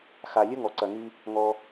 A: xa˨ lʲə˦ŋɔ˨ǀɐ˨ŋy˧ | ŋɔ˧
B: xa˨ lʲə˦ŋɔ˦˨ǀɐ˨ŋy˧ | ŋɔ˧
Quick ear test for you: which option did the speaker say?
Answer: A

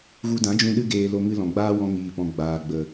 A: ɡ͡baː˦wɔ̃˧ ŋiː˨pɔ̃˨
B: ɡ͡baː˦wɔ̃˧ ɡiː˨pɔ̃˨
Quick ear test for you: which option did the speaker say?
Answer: A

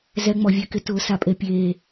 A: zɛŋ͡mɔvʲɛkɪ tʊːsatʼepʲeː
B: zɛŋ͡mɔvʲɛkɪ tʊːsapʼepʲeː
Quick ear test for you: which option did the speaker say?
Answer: B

